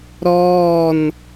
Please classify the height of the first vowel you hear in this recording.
mid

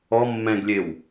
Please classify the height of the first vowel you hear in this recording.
mid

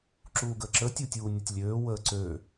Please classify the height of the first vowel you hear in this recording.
high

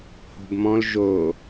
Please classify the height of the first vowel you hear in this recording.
mid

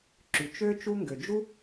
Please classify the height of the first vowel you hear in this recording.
high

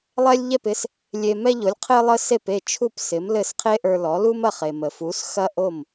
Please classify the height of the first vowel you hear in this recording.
mid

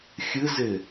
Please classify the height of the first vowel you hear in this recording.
high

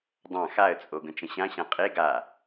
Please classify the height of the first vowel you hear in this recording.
low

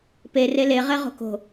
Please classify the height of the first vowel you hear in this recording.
mid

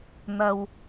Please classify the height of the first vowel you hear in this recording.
low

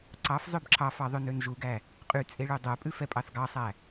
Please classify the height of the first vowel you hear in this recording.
low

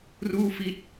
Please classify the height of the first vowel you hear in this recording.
high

